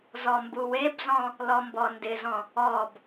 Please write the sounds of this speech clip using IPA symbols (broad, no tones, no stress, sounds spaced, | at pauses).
z ɔ m b u w e b z ɔ̃ | l ɔ m b ɔ n d ɪ z ɔ̃ | ɔ b